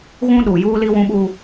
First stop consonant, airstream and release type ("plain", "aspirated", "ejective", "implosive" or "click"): implosive